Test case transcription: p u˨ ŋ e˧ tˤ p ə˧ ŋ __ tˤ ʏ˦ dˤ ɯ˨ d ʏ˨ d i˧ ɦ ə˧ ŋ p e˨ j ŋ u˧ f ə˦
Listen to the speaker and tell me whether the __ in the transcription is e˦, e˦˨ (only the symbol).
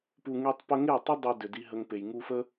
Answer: e˦˨